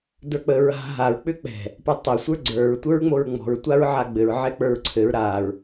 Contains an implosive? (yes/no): no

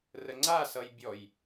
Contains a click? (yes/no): yes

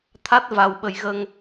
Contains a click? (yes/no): no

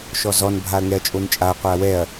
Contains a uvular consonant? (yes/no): yes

